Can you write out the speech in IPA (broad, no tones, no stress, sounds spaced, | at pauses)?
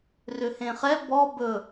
r ʏ h ẽ χ ɛ b ɔ b ɵ